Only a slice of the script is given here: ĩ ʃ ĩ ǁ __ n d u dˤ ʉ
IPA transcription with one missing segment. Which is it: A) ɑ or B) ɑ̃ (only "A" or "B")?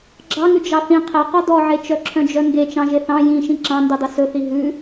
B